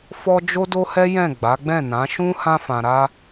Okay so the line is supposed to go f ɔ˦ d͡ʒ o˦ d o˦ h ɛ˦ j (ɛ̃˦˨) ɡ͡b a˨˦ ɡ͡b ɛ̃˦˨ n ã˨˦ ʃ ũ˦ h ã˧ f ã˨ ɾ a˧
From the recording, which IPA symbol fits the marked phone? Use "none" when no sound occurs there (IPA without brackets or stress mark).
ɛ̃˦˨